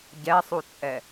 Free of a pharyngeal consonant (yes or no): yes